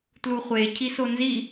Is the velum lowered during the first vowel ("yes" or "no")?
no